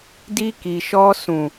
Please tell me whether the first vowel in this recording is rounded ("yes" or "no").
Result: no